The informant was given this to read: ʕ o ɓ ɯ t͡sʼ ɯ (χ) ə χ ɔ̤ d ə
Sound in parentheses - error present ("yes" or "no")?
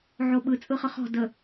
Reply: no